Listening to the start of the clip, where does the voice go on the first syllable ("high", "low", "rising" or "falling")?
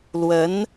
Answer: rising